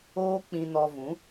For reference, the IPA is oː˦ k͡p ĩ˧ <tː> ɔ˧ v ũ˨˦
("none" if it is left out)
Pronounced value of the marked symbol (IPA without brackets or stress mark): n